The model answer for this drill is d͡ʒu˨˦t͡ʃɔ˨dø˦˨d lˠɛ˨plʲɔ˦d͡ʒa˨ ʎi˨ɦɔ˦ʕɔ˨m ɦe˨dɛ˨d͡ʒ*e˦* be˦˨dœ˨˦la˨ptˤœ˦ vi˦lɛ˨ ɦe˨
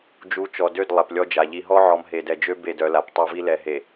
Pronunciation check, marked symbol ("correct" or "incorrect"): incorrect